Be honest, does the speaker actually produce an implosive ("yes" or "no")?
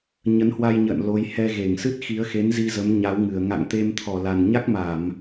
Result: no